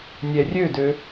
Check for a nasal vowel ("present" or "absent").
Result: absent